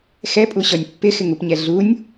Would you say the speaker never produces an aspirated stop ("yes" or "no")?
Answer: yes